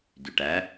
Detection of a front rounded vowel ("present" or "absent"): present